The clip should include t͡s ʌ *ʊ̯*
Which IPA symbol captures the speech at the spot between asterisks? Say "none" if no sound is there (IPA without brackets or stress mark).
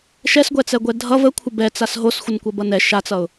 ʊ̯